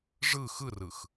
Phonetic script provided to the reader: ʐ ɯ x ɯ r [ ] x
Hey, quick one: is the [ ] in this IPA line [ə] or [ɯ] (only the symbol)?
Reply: ɯ